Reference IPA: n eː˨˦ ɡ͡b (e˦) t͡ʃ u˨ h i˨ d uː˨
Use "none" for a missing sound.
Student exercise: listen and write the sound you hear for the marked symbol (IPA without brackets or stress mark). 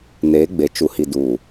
e˨